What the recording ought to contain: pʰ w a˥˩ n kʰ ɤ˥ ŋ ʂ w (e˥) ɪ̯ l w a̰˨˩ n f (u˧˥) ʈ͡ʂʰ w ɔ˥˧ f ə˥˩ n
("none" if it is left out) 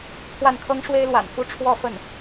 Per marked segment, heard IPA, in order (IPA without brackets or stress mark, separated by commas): e˥, u˥˧